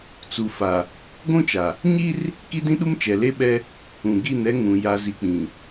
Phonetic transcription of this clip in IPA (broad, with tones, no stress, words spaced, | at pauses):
t͡su˨ fa˨ | ɡʷũ˦t͡ʃa˨ | ɲi˦r | ki˦dĩ˦ɗu˦m t͡ʃɛ˨ le˦ɓɛ˦ | ũ˨ɡi˦˨nɛ˦ ŋũ˨ ja˨zi˨k͡pĩ˨